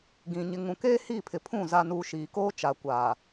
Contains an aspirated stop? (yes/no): yes